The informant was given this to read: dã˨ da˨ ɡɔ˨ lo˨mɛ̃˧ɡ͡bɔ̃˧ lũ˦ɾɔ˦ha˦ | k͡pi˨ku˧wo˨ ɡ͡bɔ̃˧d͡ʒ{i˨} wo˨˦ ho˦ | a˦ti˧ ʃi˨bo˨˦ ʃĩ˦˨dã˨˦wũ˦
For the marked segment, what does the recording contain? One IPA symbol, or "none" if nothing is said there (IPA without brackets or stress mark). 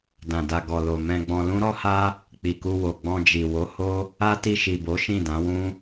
i˨